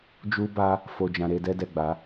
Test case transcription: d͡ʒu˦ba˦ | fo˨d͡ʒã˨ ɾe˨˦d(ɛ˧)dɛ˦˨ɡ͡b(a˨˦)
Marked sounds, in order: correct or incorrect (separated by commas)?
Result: incorrect, correct